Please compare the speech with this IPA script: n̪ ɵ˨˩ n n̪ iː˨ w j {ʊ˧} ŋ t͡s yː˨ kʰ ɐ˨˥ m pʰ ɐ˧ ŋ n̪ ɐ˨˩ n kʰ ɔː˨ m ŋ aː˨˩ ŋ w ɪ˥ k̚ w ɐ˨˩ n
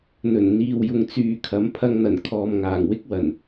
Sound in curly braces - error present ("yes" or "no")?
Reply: yes